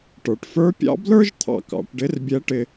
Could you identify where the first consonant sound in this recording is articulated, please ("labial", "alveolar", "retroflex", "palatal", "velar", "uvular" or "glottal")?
retroflex